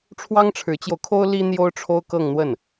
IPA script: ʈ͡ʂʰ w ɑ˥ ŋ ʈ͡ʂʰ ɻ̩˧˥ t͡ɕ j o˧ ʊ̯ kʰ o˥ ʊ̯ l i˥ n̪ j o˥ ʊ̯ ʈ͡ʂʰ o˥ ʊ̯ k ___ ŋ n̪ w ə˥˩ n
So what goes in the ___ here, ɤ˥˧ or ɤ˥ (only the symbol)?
ɤ˥˧